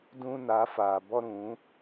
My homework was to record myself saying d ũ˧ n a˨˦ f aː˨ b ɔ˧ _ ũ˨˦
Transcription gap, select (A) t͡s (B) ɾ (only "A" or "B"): B